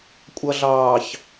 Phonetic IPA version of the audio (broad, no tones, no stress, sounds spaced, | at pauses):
kʷʼ ʌ ɮ ɑː ç